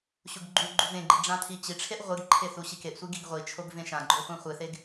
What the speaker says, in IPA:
ɕuɡɡ͡ǃuɡ͡ǃu vẽɡ͡ǃi ɖ͡ʐãtʰit͡ɕiʈ͡ʂʰeʔ ʁʷɨɡǃʰe θuɕikeʔsʷi ɡiɡʁʷit͡ʃʰoɡ vẽʃãɡ͡ǃo χʷãχʷɨθeɡ

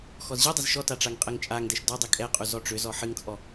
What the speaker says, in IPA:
xɔzʑidˤɛz ʃɔta ʈ͡ʂaŋqʼɛŋt͡ʃʼaŋdɛʃ dɔ dˤikʼɛqʼu zɔʈ͡ʂʏzɔ ħɨŋt͡sʼɔ

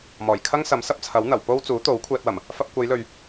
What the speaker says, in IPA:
mɔː˨˩jkʰɐ˥ŋ sɐ˨˥msɐ˧p̚t͡sʰɐ˨˥wn̪ɐ˨˩w po˥w t͡suː˨˥t̪o˨˥w kʷʰɛː˧t̚wɐ˨˩m | fɐ˧p̚kʷɐ˨˧jlɵ˨ɥ

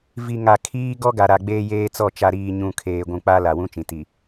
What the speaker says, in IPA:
vi˨ŋa˨kʰiː˦ ɡɔ˦ɡa˨ ɾa˨ɡ͡beː˦jeː˦t͡sɔ˦˨ t͡ʃa˨ɾiː˨ɲũ˨ kʰeː˨ɡʷũ˨k͡pa˦ la˨wũ˦t͡ʃĩ˨ ti˨

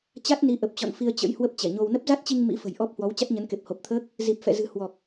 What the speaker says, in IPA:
t͡ɕa˦˥t̚ni˨˦ ʔə˨˩p̚t͡ɕɔ̰˧˨n fi˧ə̯t͡ɕə̰˧˥jhwə˦˥p̚ t͡ɕɛ˧˩ɲo˧w nə˦˥p̚za˦˥t̚t͡ɕi˧ŋ mḭ˧˥ fə̤˨˩j ʔɔ˦˥p̚ hwɔ˨˦w t͡ɕa˦˥t̚ɲə˨˦nke˨˩p̚ ho˨˩p̚t̪ʰəː˦˥k̚ | zi˨˩p̚fɛ̰˧˨ zɨ̤˨˩hwɔ˨˩k̚

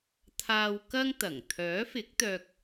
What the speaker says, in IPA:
t̪ʰaː˧wkɐ˥ŋ t̪ɐ˨˩ŋ t̪ʰœː˨˥fɪ˨˥k̚t̪œː˧k̚

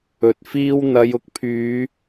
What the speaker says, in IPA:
ɵ˨t̚fiː˥w n̪ɐ˨˧jʊ˨k̚pʰyː˨˧

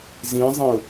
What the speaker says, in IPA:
zĩzˤẽʊ̯

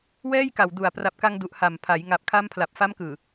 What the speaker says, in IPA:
wɛː˥˩jka˨˩wdu˨˩a̯ pra˨˩p̚ka˧ŋdu˨˩ʔ ha˨˩m pʰa˩˦j ŋa˨˩p̚kʰa˦˥m pʰla˨˩p̚ fa˦˥mkɯː˨˩

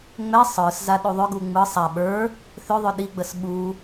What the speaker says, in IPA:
ŋ͡mɛ sˤə˞s zaɗuðˤʏɡu ŋ͡mɯ sˤa ɓə˞ | θʏðˤʏ ɗiɡ͡bəs ɓu

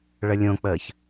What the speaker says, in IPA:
ɭəlʲõk͡pəːç

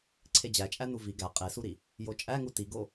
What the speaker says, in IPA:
ǀʰed͡ʑæt͡ʃʼænu vi ɡæ qʼesuɾi | jot͡ʃʼæŋu tiɡo

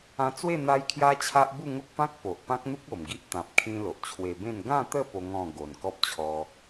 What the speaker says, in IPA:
ã˧t͡swe˥˧ n̪a˦jkʰja˦t͡ɕʰa˦ʔ bu˥˧ŋo˦k̚pã˦k̚ po˨ʔpã˦k̚n̪u˦k̚ o˨˩mɡi˦ʔ t̪ã˨p̚kʰĩ˧ lo˨ʔt͡ɕʰwe˧bẽ˥˧n ɡã˥˧t̪ə˥˧ po˦ŋɔ̃˥˧ ɡo˨˩nkɔ˦p̚t͡ɕʰɔ˧

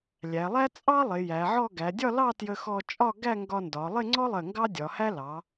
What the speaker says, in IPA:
lʲæ˩˧lˠæ˥ t͡sʼɑ˥ lˠɪ˩˧jæ˩˧ʕɔ˥˧ ɡæ˩˧dʲɒ˥˧lɑ˥˧ tjə˧xɔ˧t͡ʃʼɒ˥˧ ɡæ˥˧ŋɡɒ˧ndɒ˩˧ lˠɪ˥˧ŋ͡ǀɔ˥lˠɜ˧˩ ŋɡɑ˥dʲɒ˩˧hæ˥ lɑ˩˧

